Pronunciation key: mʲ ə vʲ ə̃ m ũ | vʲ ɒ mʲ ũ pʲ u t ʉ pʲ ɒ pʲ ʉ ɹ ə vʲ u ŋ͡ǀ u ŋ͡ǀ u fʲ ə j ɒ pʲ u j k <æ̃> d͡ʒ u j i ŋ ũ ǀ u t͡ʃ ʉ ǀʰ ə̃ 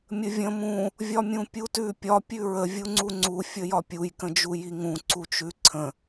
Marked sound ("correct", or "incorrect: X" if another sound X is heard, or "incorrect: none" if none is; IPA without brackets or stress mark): incorrect: ə̃